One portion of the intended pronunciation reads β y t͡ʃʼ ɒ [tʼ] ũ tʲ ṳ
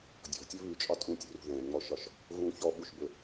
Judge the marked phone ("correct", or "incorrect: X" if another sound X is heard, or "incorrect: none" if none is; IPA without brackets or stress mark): correct